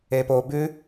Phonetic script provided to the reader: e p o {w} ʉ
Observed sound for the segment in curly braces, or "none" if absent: b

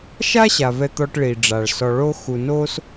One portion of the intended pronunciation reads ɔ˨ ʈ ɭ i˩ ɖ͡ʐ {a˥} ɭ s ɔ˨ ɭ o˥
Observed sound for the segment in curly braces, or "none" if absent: a˩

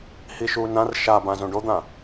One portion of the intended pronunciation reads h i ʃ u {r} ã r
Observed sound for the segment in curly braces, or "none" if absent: n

